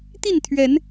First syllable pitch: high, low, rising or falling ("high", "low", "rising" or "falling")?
falling